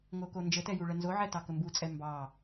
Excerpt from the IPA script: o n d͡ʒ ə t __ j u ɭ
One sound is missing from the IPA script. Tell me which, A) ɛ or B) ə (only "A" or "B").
A